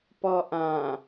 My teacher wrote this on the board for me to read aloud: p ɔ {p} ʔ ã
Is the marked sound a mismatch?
yes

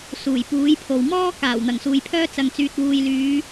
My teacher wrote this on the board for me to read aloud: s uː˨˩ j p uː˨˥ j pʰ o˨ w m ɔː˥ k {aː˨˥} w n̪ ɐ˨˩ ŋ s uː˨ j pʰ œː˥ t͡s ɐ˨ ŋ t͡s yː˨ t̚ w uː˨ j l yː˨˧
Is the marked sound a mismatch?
yes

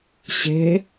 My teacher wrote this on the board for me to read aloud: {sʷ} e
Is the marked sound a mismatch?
yes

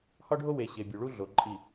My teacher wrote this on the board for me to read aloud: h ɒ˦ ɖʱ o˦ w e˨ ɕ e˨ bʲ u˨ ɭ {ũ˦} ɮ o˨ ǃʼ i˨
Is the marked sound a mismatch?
yes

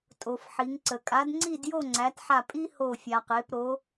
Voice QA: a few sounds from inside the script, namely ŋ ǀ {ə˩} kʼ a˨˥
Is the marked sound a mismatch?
no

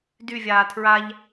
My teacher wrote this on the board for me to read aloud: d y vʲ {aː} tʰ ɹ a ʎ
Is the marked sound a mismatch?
no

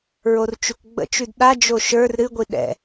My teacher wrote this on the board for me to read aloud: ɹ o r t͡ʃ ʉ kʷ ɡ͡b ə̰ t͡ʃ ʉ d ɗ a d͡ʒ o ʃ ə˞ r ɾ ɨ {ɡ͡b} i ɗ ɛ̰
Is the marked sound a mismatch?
yes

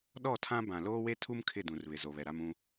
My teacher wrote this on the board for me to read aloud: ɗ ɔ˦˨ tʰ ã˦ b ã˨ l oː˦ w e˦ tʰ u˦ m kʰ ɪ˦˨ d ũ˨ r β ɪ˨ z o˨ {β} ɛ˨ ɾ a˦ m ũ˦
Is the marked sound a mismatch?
no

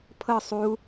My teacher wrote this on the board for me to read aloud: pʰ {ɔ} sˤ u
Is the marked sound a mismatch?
yes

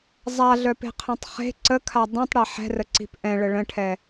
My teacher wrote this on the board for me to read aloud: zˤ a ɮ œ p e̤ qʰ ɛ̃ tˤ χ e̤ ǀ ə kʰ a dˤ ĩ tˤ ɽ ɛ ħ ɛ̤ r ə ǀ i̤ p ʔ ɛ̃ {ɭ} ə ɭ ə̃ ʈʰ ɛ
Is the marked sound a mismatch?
no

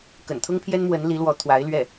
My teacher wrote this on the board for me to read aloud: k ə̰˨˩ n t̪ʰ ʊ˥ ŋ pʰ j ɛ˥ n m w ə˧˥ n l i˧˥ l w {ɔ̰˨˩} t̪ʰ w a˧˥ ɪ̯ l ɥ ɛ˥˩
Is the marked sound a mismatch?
yes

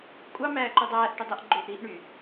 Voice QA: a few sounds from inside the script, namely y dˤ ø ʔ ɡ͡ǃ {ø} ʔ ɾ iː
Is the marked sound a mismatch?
no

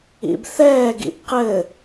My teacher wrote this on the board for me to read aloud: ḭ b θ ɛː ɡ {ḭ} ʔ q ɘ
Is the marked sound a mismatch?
no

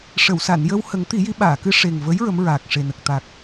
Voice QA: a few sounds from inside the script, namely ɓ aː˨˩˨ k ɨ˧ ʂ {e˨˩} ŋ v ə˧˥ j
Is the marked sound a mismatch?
no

